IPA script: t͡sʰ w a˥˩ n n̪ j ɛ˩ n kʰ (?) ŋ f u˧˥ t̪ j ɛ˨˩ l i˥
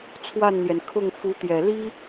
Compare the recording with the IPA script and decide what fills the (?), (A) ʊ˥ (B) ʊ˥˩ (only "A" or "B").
B